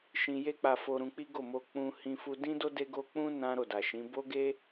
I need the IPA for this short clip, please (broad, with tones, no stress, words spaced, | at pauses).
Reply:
ʃĩ˧je˦ k͡pa˧fo˧ ɾũ˧k͡pi˦ɡo˦˨mo˧ k͡pũ˧hĩ˧ fu˧dĩ˦do˦ de˦ɡo˦ k͡pũ˦ nã˦ ɾo˦˨da˨ʃĩ˨˦ bo˦ɡe˦